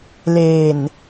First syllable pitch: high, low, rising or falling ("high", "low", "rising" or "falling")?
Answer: low